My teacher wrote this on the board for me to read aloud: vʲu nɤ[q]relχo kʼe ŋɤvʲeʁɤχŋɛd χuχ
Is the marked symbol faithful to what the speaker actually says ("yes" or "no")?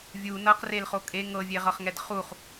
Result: yes